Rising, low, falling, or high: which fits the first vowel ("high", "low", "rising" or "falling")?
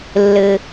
low